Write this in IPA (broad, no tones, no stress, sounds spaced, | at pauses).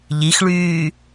ʎ i x ɭ yː